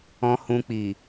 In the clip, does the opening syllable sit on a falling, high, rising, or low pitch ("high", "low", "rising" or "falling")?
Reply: low